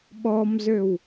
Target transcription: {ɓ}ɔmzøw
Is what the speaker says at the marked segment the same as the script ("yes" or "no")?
yes